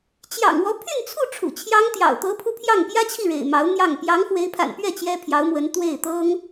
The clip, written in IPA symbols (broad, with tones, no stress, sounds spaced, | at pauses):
t͡ɕ j ɑ̰˨˩ ŋ w ɔ˧˥ pʰ y˥˧ n t͡sʰ u˥˩ ʈ͡ʂʰ ṵ˨˩ t͡ɕʰ j ɑ˥ ŋ t̪ j ɑ̰˨˩ ʊ̯ t̪ ɤ˧˥ pʰ u˧ pʰ j ɑ˥˩ ŋ p j ä˥ t͡ɕʰ i˥˩ ɻ ḛ˨˩ ɪ̯ m ɑ˧˥ ʊ̯ n̪ j ɑ˥˩ ŋ p j ɑ˧˥ ŋ x w e˧˥ ɪ̯ pʰ a̰˨˩ n p ɥ ɛ˥˩ t͡ɕ j ɛ˥ pʰ j ɑ˧˥ ʊ̯ m w ə˧˥ n t̪ w e˥˩ ɪ̯ t̪ ɤ˥ ŋ